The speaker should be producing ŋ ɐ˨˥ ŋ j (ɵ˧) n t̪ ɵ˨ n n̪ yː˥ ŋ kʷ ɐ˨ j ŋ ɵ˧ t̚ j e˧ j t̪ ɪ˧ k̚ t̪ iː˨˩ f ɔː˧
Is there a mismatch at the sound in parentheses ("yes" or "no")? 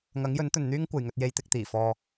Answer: yes